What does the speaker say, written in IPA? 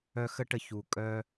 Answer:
œ˦ x ə˥ ʈ ə˦ ç u˨ kʼ œ˥

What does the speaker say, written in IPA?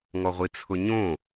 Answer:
ŋ ɔ ʁʷ i t͡sʰ ʊ ɲ õ

